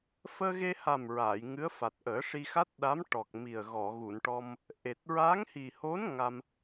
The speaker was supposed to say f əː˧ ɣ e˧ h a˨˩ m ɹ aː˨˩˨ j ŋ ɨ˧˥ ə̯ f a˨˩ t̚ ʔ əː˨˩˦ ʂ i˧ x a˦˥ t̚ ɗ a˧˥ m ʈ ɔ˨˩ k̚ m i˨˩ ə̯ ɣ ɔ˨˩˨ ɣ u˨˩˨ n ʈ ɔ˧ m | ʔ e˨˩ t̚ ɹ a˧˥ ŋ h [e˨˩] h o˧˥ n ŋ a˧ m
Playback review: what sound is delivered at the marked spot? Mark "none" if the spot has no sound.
i˨˩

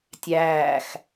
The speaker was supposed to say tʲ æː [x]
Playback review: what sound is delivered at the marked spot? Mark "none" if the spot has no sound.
x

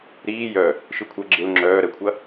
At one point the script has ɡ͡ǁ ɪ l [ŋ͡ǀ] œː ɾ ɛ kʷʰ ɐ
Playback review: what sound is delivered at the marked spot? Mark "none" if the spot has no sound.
ŋ͡ǁ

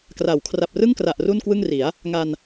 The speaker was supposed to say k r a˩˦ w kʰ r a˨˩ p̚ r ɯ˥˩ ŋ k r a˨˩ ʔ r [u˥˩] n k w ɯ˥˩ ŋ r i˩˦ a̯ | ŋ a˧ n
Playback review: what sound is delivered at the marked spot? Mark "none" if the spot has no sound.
u˥˩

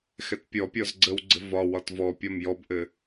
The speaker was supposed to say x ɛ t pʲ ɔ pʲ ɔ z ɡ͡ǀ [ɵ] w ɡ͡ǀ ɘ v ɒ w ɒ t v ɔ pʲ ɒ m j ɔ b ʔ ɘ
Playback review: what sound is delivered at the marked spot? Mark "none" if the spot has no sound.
ə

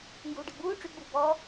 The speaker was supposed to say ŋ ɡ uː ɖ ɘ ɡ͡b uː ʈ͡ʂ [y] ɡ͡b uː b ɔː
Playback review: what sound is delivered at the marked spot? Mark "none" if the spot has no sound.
y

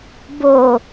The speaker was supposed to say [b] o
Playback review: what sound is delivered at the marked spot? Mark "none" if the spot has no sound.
b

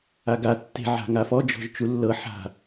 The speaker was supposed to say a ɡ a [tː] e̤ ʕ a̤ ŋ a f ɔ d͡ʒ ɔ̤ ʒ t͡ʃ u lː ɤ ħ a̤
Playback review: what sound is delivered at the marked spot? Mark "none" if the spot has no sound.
tː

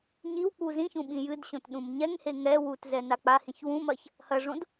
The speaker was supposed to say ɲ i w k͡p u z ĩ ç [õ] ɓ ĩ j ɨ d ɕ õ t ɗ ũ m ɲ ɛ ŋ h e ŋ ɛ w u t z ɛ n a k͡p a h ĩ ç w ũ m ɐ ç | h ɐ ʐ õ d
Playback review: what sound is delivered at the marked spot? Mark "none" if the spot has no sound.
ũ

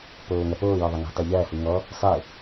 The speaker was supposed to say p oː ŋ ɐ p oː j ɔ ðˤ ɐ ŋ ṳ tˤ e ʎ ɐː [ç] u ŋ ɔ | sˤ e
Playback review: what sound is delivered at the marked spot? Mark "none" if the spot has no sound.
h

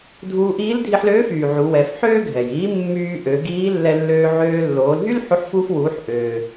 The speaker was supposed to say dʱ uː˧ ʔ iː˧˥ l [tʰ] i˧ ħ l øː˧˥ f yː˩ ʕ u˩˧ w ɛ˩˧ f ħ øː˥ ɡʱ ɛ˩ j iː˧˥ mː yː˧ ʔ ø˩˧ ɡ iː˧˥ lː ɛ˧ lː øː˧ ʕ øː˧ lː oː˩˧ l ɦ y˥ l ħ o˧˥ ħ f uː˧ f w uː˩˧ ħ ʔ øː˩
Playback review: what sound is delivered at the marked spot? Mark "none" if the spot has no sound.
dʱ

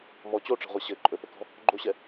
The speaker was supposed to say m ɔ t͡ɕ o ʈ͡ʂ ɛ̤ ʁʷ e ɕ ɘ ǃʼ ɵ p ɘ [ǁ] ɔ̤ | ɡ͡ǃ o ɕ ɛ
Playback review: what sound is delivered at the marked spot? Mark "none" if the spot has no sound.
k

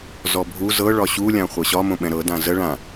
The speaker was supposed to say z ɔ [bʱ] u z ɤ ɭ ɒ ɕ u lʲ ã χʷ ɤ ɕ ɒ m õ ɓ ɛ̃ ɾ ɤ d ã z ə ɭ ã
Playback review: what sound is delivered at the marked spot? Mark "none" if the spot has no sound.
bʱ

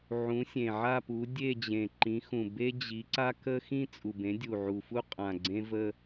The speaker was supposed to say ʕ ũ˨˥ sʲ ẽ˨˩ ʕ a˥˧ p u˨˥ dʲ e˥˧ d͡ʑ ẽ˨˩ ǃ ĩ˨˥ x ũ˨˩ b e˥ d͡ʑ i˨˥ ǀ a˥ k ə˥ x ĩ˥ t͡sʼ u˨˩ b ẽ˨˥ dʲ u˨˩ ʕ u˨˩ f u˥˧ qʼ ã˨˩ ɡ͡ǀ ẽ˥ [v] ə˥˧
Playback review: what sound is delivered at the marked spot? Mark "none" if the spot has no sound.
v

